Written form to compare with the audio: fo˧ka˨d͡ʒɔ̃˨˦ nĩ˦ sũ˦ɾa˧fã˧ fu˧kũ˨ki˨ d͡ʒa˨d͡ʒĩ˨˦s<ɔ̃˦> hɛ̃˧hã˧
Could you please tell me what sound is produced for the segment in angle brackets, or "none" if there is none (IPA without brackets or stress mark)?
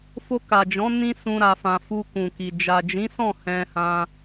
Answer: ɔ̃˦˨